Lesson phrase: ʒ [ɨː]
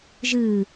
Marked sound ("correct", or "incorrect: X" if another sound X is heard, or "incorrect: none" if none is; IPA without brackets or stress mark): correct